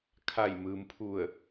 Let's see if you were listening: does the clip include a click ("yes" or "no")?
no